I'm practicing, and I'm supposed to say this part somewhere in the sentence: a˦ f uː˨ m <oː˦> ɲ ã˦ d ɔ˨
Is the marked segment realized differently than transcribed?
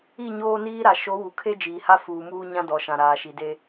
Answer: yes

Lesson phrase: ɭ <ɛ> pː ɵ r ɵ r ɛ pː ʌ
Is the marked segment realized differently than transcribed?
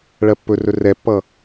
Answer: yes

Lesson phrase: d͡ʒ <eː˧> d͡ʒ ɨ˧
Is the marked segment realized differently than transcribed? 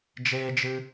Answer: no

